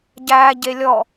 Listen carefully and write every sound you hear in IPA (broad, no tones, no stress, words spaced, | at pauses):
ɟæːɟe lʲɔ